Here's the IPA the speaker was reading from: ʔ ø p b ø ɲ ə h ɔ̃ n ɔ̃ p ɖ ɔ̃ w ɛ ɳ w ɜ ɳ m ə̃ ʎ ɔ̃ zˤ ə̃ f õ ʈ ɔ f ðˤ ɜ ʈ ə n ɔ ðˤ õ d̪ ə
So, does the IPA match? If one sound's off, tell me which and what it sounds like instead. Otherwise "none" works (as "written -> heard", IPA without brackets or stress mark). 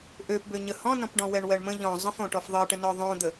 none